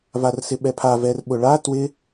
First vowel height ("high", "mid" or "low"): low